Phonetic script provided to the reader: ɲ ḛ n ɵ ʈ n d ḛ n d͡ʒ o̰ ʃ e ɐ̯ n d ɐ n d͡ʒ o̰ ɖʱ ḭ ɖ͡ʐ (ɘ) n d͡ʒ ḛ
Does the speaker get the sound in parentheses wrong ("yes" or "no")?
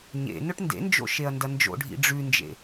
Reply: yes